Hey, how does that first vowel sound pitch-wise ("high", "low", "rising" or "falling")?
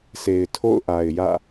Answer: low